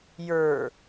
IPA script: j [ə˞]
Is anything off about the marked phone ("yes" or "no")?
no